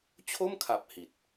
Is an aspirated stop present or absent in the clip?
present